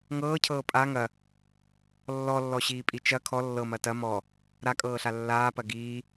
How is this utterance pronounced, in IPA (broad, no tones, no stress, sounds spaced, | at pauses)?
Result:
ŋ ɤː cʰ ɤː pʼ a ŋ ɐ | lː ɔ lː ɔ ɕ iː pʼ i t͡ʃ ɐ kʰ ɔ lː ɤ m ɐ t ɐ m ɔ | ɾ a kʼ ɤː ɬ a lː aː p ɐ ɡ iː